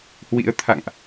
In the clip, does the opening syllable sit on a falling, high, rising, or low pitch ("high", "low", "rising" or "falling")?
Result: rising